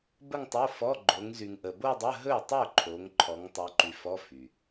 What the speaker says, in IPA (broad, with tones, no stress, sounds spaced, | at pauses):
b ə˥˧ ŋ tˤ o˧˥˧ f ɔ˧˥˧ ɡ͡ǃ o˨˦ ŋ z y˨ ŋ ʔ ə˨ b o˥˧ dˤ ə˧˥˧ ɦ ɵ˥˩ tˤ ɵ˥˩ ǃʰ o˨˦ ŋ ǃʰ ɔ˨˦ ŋ tˤ ɵ˨˦ ǃ y˨ f ɔ˧˥˧ f y˨